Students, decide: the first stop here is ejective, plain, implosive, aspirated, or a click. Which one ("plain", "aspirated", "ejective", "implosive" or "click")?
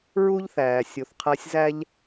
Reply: aspirated